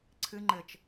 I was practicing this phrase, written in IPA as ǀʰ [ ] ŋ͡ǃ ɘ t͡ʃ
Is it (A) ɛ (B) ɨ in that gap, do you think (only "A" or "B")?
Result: B